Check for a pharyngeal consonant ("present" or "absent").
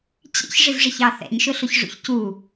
absent